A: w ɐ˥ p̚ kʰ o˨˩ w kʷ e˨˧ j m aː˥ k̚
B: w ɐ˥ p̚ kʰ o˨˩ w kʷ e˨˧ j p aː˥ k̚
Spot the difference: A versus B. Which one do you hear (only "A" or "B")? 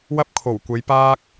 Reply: B